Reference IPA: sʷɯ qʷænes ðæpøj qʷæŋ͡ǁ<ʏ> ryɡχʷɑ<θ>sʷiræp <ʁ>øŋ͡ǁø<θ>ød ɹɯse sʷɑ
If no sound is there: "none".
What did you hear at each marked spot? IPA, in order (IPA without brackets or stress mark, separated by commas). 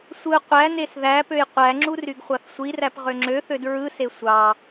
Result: u, θ, ʁ, θ